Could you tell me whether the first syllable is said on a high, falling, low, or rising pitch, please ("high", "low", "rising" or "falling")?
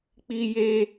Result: high